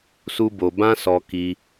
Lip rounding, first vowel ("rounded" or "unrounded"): rounded